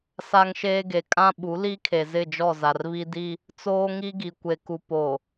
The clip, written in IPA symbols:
s a˦ ŋ ʃ eː˦ ɡ e˨ kʼ ã˦ ɓ u˨˦ l i˦ kʰ e˨ z ɪ˦˨ d͡ʒ ɔ˦˨ z a˨ r β i˦ d i˦ | t͡s oː˦ ŋ i˦ ɡ i˨ kʷ e˨ k u˨ p o˨

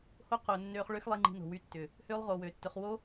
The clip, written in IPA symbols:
h o˦ q ʊː˨ nː øː˧ χ ɭ ø˦ x lˠ i˧ ŋ͡ǃ i̤˧ n o̤˨ w y˦˨ tː ʏ˨ | h øː˦ lˠ ʁ oː˨ w øː˨ tː ʏ˨˦ χ w o˦

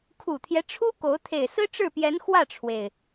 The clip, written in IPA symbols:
kʰ u˨˩ t̪ʰ j ɛ˦ ʈ͡ʂʰ u˥ k o˧˥ ʊ̯ t̪ʰ e˨˩ ɪ̯ s ɹ̩˥ ʈ͡ʂ ɻ̩˥˩ p j ɛ˧˥ n x w ä˥˩ ʈ͡ʂʰ w e˩ ɪ̯

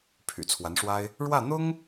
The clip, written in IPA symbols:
pʰ y̰˨˩ t͡sʰ w a˧˥ n ʂ w a˥ ɪ̯ | ɻ w ä˥˩ n̪ ʊ˥ ŋ

